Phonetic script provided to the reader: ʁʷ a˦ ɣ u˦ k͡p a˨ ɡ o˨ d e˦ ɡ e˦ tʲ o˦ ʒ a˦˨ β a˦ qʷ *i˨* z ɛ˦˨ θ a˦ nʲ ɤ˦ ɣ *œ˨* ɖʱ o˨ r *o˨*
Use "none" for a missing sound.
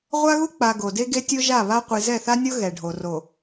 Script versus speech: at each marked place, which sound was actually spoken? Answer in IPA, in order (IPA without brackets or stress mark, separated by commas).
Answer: i˨, ɛ˨, o˨